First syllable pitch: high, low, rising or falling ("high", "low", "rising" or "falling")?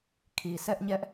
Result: low